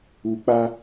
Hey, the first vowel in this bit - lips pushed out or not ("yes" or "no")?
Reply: yes